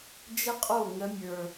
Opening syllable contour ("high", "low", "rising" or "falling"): high